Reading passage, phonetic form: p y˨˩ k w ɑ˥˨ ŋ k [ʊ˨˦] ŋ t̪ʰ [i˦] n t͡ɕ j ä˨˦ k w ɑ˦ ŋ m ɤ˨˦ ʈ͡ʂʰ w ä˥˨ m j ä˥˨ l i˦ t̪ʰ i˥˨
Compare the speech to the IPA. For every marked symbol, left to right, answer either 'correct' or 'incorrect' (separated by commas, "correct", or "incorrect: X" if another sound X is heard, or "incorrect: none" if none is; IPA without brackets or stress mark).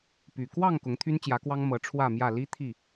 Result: correct, incorrect: y˦